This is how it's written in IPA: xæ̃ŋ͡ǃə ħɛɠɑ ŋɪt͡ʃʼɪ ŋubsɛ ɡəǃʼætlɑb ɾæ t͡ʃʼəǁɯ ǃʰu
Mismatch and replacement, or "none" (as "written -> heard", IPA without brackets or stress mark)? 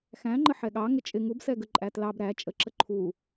ɯ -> ə